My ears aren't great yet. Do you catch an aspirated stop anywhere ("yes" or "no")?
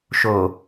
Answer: no